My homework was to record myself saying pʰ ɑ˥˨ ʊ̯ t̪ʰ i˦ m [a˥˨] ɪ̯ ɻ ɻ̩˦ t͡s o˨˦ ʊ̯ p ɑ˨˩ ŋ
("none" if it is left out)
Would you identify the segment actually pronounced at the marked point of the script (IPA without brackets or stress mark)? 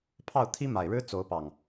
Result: a˨˩